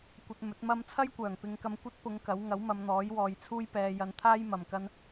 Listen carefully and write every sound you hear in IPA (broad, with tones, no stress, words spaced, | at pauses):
kʷɐ˧t̚mɵ˨˥t̚mɐ˥m t͡sʰɐ˥jkʷœː˨˩ŋpɪ˨˧ŋkɐ˧m kʷɐ˥t̚pʊ˨˧ŋ kɐ˨˥w ŋɐ˨˥wmɐ˨˧mn̪ɔː˨˥j wɔː˨˧jt͡sʰuː˥jpɛː˧ jɐ˧nt̪ʰaː˥jmɐ˨m kɐ˥n